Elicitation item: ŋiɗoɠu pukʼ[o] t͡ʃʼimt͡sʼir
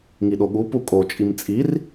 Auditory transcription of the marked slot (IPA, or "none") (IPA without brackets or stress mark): o